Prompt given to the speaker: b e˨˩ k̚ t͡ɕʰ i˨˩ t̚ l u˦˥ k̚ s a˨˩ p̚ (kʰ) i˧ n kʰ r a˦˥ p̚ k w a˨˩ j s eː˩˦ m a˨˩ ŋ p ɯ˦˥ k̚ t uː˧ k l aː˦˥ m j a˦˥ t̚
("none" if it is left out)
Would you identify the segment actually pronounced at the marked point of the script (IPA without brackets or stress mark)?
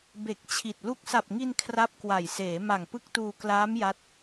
ŋ